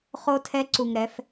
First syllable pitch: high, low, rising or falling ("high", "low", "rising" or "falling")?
high